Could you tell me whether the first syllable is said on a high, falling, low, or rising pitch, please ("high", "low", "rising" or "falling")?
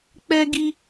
high